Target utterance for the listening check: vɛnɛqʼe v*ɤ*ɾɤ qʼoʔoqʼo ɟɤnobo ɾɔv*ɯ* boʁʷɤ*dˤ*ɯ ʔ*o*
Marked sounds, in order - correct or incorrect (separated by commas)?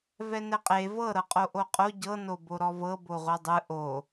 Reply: correct, incorrect, correct, correct